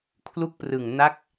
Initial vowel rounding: rounded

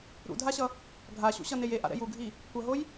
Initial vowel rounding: rounded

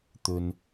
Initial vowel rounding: rounded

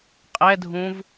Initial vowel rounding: unrounded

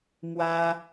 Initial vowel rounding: unrounded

